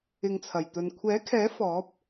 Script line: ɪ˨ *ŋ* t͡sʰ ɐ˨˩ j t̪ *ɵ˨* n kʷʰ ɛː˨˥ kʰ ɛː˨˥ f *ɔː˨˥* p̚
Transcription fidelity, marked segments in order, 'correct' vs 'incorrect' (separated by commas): correct, correct, correct